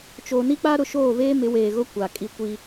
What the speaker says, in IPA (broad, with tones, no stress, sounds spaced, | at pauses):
t͡ʃ oː˨ n i˦ k͡p a˦ ɾ ʊ˨ ʃ oː˦˨ v eː˦ m ɪ˨˦ w eː˨ ɣ ʊ˦ kʷ a˨ kʼ i˦ kʷ iː˦